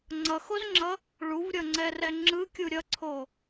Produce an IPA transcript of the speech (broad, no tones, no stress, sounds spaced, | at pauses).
ŋ͡ǀ ʌ x o z ŋ͡ǁ ʌ | ɭ u v ɾʲ ʌ ŋ͡ǀ ɛ r ɛ ŋ͡ǁ ɯ kʲ u ɾʲ ʌ ǀʰ o